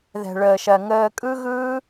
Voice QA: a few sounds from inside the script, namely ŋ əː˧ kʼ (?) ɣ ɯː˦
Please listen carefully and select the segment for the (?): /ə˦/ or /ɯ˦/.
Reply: ɯ˦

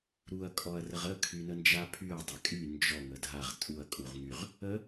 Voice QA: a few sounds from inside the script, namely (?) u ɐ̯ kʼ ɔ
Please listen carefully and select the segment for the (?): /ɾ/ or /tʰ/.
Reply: ɾ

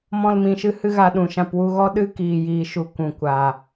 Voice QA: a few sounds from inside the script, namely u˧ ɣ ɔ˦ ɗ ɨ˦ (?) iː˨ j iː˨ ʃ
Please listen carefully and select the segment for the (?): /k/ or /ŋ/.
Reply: k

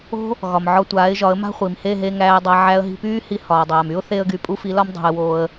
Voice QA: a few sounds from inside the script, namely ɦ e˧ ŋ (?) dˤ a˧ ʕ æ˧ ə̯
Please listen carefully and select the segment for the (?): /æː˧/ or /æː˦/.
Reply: æː˧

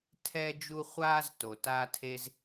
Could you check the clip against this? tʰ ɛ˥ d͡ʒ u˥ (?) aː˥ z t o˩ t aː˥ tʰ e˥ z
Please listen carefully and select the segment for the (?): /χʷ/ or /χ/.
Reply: χʷ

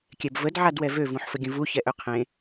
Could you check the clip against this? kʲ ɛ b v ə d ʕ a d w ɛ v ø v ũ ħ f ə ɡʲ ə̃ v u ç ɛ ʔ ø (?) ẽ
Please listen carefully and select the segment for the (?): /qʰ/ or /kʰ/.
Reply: qʰ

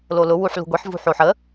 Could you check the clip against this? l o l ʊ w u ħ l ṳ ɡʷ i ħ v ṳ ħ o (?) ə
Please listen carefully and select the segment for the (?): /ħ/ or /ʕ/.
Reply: ħ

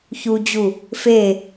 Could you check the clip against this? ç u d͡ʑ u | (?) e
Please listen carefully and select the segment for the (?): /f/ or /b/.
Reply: f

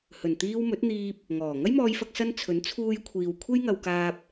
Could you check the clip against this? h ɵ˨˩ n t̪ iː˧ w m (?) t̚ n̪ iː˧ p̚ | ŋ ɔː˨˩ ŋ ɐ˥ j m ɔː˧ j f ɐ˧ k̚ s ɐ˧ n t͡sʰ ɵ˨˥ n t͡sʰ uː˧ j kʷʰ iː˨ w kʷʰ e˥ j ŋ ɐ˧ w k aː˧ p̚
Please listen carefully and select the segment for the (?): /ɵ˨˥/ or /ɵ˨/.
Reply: ɵ˨˥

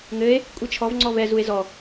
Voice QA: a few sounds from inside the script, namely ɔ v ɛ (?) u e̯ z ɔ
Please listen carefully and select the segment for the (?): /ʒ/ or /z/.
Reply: z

